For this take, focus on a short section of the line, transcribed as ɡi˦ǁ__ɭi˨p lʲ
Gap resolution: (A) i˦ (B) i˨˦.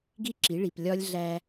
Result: B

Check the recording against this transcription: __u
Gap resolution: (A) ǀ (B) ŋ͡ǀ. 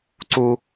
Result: A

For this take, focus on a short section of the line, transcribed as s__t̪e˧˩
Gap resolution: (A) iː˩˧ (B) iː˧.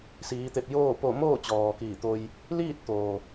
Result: A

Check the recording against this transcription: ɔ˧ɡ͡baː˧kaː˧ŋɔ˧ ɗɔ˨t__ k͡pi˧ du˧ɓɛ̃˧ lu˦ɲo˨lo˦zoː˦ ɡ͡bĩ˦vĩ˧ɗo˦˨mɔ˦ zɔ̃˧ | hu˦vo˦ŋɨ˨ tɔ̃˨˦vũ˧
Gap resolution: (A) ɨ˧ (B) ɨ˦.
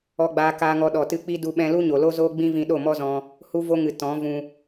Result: A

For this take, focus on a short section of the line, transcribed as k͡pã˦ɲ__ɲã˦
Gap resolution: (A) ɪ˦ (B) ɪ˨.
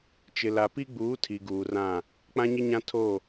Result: A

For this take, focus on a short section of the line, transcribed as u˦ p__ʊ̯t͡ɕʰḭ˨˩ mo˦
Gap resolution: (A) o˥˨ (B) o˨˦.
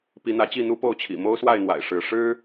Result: A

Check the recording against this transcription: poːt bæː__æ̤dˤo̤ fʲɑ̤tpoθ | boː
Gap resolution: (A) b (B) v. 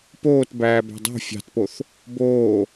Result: A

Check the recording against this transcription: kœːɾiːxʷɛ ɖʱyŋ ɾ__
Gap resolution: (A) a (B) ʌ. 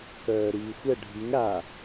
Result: A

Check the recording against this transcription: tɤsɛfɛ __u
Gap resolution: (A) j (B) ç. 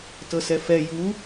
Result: A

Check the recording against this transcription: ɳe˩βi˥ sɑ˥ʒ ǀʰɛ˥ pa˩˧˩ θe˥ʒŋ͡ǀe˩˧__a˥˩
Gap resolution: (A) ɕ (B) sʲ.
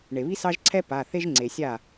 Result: B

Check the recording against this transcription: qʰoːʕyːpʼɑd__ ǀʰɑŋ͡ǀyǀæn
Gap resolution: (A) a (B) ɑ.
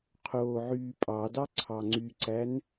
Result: B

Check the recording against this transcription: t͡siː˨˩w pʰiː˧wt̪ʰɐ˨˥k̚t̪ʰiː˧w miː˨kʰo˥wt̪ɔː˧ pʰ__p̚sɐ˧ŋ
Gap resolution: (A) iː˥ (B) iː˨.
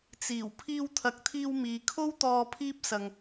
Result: A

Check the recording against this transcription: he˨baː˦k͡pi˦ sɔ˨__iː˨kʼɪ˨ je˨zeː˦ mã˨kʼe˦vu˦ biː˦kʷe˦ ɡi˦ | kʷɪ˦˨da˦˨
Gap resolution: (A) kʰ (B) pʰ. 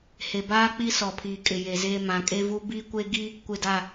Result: B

